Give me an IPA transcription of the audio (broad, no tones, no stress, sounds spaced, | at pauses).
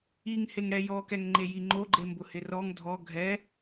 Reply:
i ŋ h ɪ ŋ ɽ ɛ j ɔ k ɛ ŋ ŋ͡ǃ e j i ŋ͡ǃ o ɡ͡ǃ e m b ʊ h ɪ r ɔ ŋ dʱ ɔ ɡʱ ɛ